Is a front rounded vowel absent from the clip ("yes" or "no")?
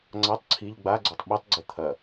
yes